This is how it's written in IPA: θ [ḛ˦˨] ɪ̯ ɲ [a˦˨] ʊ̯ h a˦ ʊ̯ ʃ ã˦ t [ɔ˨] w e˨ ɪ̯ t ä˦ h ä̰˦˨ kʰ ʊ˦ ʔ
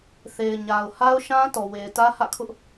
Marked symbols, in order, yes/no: no, no, yes

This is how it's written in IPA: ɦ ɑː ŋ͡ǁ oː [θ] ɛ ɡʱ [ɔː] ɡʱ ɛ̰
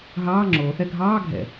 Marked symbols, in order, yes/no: yes, no

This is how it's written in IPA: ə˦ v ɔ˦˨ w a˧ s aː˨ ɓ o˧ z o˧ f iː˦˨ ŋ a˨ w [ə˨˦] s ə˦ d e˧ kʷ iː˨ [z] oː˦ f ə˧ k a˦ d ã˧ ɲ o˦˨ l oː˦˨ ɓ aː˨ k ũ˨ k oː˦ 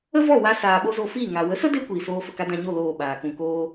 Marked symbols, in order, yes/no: yes, no

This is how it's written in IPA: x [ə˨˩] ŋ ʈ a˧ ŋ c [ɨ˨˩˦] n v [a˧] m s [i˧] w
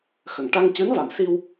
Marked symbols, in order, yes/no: yes, no, no, yes

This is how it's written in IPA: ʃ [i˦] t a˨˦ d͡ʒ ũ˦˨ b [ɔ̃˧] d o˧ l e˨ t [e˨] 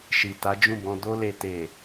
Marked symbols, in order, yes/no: no, yes, yes

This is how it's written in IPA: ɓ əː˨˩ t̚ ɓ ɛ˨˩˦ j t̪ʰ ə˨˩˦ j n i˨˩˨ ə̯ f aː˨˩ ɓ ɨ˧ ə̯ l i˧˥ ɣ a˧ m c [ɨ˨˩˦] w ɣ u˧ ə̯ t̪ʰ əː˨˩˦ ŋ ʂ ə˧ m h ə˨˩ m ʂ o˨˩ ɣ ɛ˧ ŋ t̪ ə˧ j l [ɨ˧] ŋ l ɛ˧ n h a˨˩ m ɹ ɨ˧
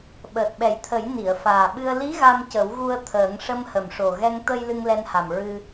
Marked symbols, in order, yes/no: no, yes

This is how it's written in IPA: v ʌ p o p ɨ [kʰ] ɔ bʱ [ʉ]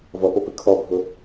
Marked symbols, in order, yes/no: yes, no

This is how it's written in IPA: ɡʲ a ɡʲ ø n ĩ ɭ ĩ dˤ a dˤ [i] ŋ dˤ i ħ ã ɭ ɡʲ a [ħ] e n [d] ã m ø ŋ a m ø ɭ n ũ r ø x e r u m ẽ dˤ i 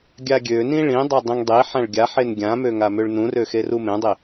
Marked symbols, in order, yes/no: no, yes, no

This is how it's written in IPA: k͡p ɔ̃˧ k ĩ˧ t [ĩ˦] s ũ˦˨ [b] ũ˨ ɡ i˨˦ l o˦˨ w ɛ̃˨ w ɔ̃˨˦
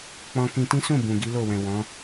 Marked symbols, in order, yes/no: yes, yes

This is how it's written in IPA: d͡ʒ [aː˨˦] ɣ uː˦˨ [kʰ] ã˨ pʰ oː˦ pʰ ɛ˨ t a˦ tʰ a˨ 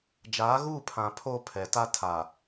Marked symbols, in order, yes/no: yes, no

